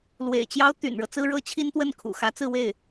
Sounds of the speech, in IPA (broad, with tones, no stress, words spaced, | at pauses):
lwḛ˨˩ɪ̯t͡ɕjɑ˥ʊ̯ t̪y̰˨˩nɻɤ˦ t͡sɹ̩˥ɻɤ˥t͡ɕʰi˥nt̪wə˥˩n kʰṵ˨˩xä˧˥ t͡sɹ̩˥˧we˥˩ɪ̯